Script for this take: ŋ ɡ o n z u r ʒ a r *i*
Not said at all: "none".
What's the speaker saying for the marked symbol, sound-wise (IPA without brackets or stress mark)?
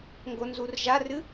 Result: ɨ